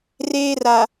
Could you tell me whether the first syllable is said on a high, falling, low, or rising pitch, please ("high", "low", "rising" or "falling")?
high